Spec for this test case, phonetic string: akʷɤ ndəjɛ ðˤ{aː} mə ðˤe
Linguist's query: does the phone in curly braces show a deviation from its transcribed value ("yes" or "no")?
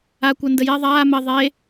no